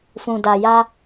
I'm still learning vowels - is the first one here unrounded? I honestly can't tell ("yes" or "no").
no